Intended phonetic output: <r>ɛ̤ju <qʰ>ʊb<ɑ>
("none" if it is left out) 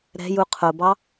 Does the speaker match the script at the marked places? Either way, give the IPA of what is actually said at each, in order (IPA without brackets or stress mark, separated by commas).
ɾ, qʰ, ɑ